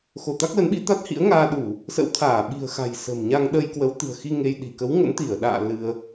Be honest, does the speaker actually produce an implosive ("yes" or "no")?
yes